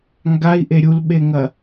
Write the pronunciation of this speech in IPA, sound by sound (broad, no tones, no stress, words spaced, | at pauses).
ŋɡai̯ʔe ɾʲulɓeŋɐ